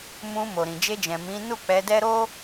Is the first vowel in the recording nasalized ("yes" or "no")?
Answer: yes